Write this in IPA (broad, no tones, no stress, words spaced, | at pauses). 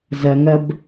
zɐŋɐb